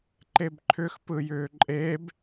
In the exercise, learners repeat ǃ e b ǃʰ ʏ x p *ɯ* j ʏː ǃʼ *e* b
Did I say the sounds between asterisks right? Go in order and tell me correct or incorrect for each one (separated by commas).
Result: correct, correct